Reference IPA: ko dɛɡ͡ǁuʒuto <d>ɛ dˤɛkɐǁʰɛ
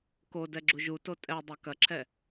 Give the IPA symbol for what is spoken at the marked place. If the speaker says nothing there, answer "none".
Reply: tʼ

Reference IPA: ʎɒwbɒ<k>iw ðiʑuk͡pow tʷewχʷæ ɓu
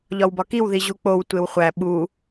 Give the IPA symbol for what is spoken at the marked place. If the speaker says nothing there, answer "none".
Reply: k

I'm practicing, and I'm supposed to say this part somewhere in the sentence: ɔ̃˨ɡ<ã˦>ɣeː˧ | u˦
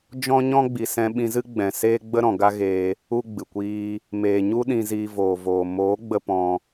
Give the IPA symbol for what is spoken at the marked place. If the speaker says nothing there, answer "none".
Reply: a˦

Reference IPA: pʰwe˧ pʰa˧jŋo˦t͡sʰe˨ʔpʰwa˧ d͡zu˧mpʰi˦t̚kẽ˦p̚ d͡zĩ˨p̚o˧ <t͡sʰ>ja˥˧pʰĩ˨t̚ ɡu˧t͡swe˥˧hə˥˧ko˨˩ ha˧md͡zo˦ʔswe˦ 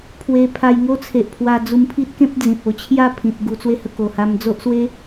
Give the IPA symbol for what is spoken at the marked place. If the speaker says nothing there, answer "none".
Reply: t͡ɕʰ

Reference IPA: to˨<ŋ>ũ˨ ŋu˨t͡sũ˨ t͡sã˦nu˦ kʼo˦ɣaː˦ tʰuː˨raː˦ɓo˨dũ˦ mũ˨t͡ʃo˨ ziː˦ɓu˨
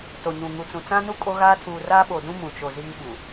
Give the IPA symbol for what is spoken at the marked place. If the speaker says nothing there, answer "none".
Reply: ɲ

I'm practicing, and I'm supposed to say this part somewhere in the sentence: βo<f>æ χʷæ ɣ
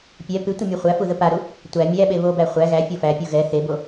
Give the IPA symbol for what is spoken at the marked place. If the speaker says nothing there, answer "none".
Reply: b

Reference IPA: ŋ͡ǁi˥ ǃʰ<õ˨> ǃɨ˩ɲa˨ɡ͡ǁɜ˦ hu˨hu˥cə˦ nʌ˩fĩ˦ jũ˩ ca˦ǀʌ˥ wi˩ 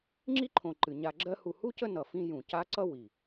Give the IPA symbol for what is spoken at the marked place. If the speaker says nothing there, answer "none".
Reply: õ˨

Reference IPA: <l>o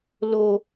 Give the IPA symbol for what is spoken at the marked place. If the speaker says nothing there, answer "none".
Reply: l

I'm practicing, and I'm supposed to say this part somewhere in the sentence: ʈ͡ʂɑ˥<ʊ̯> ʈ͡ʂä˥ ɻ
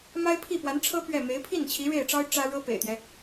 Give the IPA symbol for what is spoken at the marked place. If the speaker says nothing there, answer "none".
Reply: ʊ̯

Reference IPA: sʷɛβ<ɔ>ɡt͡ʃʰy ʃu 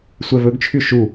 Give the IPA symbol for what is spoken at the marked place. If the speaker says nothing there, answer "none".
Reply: ɵ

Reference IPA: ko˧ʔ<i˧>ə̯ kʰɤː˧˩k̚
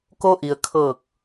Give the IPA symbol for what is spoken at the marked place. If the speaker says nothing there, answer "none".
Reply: i˩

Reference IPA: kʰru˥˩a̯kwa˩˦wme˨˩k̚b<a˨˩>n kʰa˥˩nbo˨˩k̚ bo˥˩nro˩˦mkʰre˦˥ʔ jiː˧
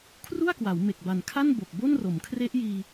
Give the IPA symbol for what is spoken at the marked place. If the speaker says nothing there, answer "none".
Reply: a˨˩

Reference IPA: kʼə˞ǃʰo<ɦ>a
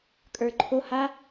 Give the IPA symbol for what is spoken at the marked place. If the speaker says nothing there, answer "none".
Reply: h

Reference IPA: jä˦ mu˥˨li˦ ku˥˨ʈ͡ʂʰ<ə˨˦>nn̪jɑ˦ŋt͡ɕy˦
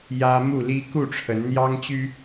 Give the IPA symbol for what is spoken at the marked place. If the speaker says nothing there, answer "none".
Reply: ə˨˦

